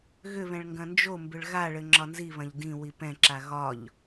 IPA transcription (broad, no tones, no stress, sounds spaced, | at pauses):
ɣ ʏ β ɛ̃ ɭ ŋ ɡ ɐ̃ n d͡ʒ o m b ʏ ɭ ɣ a ɭ ɘ ŋ͡ǁ ɒ n z i β ɐ̃ ʎ d ĩ w i p ɛ̃ ǁ a ɣ ɒ ʎ